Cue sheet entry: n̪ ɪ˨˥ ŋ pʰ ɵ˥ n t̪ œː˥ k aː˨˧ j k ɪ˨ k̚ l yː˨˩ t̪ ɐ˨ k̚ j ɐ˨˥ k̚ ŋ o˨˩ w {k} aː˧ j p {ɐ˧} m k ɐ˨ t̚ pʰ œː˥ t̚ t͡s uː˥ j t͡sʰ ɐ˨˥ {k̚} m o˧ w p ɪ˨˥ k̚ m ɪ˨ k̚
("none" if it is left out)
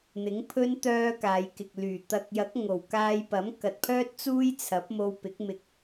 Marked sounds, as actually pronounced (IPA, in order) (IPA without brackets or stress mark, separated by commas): k, ɐ˨˥, p̚